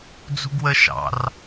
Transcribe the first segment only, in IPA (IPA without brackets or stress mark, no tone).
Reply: d͡z